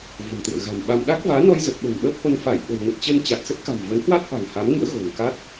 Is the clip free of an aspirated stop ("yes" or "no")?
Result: yes